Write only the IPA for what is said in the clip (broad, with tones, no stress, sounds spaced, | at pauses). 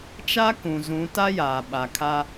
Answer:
t͡ʃ a˦ k ũ˨ z ũ˨˦ t a˦ j aː˨ ɓ a˨ kʰ a˦